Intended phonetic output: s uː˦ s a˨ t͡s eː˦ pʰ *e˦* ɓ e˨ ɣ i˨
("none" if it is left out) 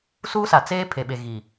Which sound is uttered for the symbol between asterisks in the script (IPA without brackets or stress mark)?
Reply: e˨